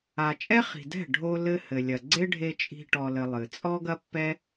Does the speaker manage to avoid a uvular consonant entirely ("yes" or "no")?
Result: no